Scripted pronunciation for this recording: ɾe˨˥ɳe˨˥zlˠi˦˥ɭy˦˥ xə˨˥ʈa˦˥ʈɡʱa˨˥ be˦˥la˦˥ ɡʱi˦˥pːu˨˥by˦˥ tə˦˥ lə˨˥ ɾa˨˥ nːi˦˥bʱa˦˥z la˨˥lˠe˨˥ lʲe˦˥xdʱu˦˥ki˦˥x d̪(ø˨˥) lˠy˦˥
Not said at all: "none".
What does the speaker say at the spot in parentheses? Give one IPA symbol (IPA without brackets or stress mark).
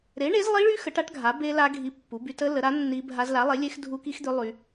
ø˦˥